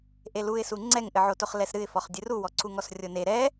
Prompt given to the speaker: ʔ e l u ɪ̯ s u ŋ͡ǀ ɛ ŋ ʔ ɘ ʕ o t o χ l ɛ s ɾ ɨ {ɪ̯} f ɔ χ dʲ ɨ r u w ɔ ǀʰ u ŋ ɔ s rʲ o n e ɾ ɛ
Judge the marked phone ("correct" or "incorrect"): correct